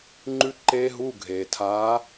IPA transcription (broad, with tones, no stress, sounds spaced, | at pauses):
ŋ͡ǃ ʉ˦˥ ǃ eː˦˥ ɦ u˧˥˧ ɡʱ eː˩ tʰ aː˨˥